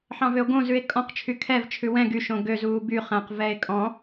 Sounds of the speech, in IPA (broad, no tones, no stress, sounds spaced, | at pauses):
ħ ɑ̃ v ø o̯ ɡ õ z ʉ e̯ kʼ ɔ̃ q t͡ʃʰ y kʰ ɛ v t͡ʃʰ ʉ w ɛ̃ ɡ y ʃ õ ɡ ø z uː b y χ æ̃ q v ɛ e̯ kʼ ɔ̃